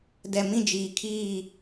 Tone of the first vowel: low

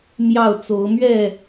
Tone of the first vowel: falling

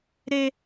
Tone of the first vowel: high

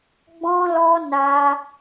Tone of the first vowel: high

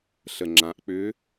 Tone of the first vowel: low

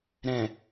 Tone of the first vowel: low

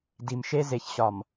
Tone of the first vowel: low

